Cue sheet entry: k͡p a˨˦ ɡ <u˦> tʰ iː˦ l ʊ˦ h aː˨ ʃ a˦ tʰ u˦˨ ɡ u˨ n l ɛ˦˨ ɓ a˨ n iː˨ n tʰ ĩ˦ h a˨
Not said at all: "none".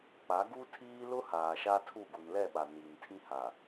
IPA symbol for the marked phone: u˦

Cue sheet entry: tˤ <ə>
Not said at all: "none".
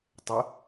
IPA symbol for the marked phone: ə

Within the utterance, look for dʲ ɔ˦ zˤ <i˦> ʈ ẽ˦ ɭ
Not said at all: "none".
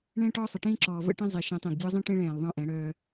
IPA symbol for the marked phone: ĩ˦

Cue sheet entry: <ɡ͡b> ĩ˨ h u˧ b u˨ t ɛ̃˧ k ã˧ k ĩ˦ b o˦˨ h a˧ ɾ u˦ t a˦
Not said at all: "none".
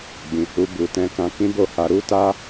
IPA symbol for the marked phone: ɡ͡b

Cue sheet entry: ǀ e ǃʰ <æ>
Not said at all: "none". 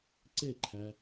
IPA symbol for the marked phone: æ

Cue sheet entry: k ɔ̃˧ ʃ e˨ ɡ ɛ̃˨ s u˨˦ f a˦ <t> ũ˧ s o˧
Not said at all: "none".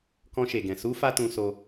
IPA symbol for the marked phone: t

